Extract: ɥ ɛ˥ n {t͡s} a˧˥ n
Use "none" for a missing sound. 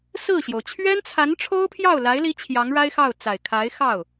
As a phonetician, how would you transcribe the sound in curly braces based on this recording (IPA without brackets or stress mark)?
t͡sʰ